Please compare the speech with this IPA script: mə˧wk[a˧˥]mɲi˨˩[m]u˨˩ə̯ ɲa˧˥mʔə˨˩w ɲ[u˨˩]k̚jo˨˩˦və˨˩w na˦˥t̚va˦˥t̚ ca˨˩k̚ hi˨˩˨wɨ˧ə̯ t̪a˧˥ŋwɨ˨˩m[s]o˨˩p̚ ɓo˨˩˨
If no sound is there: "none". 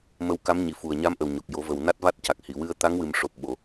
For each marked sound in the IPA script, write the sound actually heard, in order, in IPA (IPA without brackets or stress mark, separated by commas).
a˧˥, f, o˨˩, ʂ